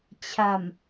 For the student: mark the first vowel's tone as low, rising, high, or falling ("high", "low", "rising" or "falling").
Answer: low